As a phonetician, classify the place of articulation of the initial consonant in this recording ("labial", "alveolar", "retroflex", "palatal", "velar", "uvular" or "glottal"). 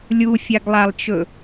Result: alveolar